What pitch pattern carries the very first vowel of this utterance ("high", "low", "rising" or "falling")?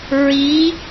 rising